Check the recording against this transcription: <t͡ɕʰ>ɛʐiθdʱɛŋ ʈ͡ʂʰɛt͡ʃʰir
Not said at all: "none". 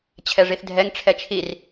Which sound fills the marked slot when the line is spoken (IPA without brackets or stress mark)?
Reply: t͡ɕʰ